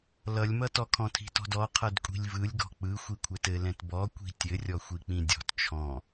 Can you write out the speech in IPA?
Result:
l ʌ lʲ m ʌ t ɔ kʰ ɔ̃ tʰ i̤ t ɔ̤ d ɔ qʰ ʌ d kʷʼ i̤ lʲ v ɯ lʲ ɡ ɔ̤ k͡p ɯ xʷ i kʷʰ ɛ t ɘ l ɛ̃ t b ɔ kʷ i̤ tʲ ɘ rʲ ɔ xʷ i k͡p ĩ dʲ ɔ̤ t t͡ʃʰ ɔ̃

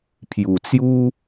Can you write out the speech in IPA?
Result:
pʰ j u˨˩ t͡s j u˦

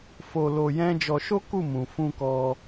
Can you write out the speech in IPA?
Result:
f o˧ l o˧ j ɛ̃˦ d͡ʒ ɔ˧ ʃ o˦ k u˦˨ m ũ˧ f ũ˦ k ɔ˦

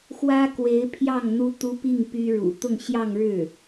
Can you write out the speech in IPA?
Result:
x w ä˥ k w e˧˥ ɪ̯ pʰ j ɑ˥˩ ŋ n̪ u˥ t̪ u˥ p i˥˩ ŋ p y˥ ɻ ṵ˨˩ t̪ ʊ˥˧ ŋ ɕ j ɑ˥˧ ŋ ɻ ɻ̩˥˩

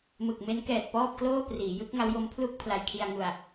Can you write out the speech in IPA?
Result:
m ɯ˨˩ k̚ m e˦˥ n k ɛː˨˩ t̚ p ɔː˥˩ p̚ k l oː˥˩ p r iː˩˦ j ɯ˦˥ k̚ ŋ a˦˥ w j o˦˥ m pʰ l u˥˩ k̚ pʰ l a˧ j kʰ i˧ a̯ ŋ u˨˩ a̯

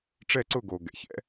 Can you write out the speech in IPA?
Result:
ʈ͡ʂ ɛ˦˨ ǀ ʊ˦˨ ɡ o˨ ɡ ɛ̰˨ ç ɛ̰˦

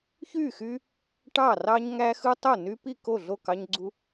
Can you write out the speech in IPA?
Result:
ç y˥˩ x y˦ | ʈ ɑ˥˩ r ɑ˦ ɲ ŋ æ˦ x ɯ˦ tˤ o˥˩ n y˦ p i˥˩ k o˥˩ ɮ o˥˩ k ɑ˦ ɲ ɡ͡ǀ u˦

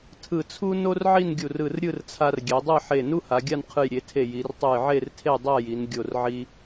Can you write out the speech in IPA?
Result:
tʰ ɯ˧˩ t͡sʰ u˥ n o˥ r ʕ i˥˧ n ɡʲ u˧˩ r ɯ˧˩ r ɾʲ ɯ˥˧ r t͡sʰ a˧ r ɡʲ ɛ˩˧ dˤ ɛ˥˧ ħ e˧˩ n u˥ h a˩˧ ɡʲ a˥˧ n qʰ ɯ˧˩ j ɾʲ e˩˧ tʰ e˧˩ j i˩˧ r tˤ u˧˩ j ʕ e˥˧ r tʰ e˥˧ dˤ a˥˧ j i˩˧ n ɡʲ o˧˩ r ʕ i˧

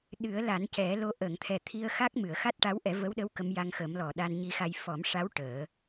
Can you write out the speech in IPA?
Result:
ɗ ɨ˨˩˦ ə̯ l a˨˩˦ n c ɛ˨˩˦ l o˧ ʔ əː˨˩˨ ŋ t̪ʰ ɛ˨˩ t̪ʰ i˧ ə̯ x a˦˥ k̚ m ɨ˨˩˨ ə̯ x a˦˥ t̚ ʈ a˧˥ w ʔ ɛ˨˩˦ v ə˧˥ w ɗ ə˧˥ w k ə˧˥ m j a˧ ŋ x ə˨˩˦ m l ɔ˨˩˨ ɗ a˧ n ɲ i˧ x a˧ j f ɔ˨˩˦ m ʂ a˧˥ w ʈ əː˨˩˦

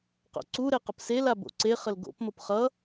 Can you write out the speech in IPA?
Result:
q o̰ ǀ u ɾ e q ə p s e l a b o̰ ǀ e χ ə l ɡ o̰ p m o p χ ʌ

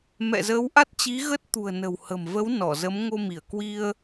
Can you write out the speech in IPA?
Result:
m ɛ̰˧˨ z əː˨˦ w ʔ a˦˥ t̚ t͡ɕ i˨˦ ɣ ə˦˥ t̚ t̪ ṳ˨˩ ə̯ n ə̤˨˩ w h ə̤˨˩ m v ə˨˦ w n ɔ˧˩ z ə˨˦ m ŋ o˧ m i˧˩ ə̯ k w i˧ ə̯

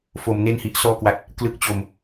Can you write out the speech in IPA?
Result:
f o˧ m n e˥˩ n h i˦˥ ʔ s ɔː˥˩ k w a˦˥ t̚ | k l ɯ˦˥ k̚ t͡ɕ o˧ m

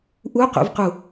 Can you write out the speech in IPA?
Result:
ʔ u q ṵ v q u

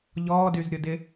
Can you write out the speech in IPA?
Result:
ʎ ɔː d y z ɾʲ ʊ d ɪ

